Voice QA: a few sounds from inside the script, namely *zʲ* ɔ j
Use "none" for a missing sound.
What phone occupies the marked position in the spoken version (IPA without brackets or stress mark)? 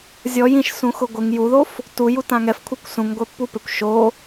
zʲ